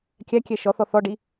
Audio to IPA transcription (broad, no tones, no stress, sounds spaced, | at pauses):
kʲ æ kʲ ɛ ʃ ɔ θ ɔ θ ɔ ɖ i